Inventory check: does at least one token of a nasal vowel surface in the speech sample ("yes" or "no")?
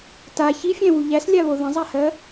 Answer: yes